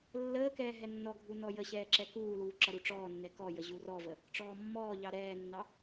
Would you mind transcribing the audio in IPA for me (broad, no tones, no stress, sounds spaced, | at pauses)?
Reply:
lː əː k ɛː ɦ ɛ nː ɔ ɡʱ u n ɔ j ə ɕ ɛː ǁ ɛ k uː l uː ǁ ʌ ɾ u ʈ͡ʂ ɔː nː ɛ k ɔ j ə ʑ u r ɔ v ə | ʈ͡ʂ ɔː mː ɔː ʎ ɑ ɾ ɛː nː ɑ